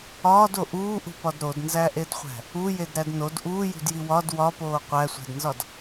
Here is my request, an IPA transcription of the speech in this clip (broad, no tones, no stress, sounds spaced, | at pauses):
ɒː d o ʔ uː ʔ ṳ p ɒ d ɾ o d n z æ ʔ e d χʷ æ̤ | u j e d ɾ æ d n o d ʔ uː j ṳ d j i w ɒ d w ɒ p oː qʷ æ sʷ æ̤ d n z ɒ d